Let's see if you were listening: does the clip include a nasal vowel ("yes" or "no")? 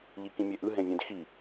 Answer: yes